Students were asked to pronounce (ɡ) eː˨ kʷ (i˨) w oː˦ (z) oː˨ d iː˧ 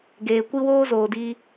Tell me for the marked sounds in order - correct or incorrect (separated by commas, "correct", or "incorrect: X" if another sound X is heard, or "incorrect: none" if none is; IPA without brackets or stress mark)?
correct, incorrect: i˦, correct